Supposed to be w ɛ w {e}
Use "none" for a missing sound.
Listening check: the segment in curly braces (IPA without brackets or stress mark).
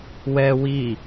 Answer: i